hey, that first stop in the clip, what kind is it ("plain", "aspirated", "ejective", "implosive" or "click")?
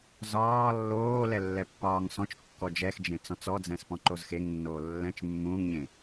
plain